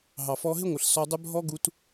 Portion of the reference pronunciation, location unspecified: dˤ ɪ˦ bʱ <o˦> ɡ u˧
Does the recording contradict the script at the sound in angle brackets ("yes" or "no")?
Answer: yes